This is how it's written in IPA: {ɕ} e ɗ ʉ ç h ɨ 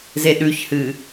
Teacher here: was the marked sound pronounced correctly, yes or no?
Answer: no